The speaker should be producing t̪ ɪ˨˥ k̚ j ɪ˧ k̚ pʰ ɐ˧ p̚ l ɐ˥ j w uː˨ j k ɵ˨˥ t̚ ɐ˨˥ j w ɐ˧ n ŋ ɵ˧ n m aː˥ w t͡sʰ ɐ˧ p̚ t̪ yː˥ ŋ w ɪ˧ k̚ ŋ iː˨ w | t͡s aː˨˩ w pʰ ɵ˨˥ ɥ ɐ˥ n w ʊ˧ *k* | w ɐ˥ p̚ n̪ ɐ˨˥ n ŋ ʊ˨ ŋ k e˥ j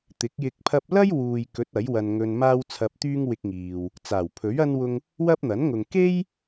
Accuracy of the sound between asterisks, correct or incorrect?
incorrect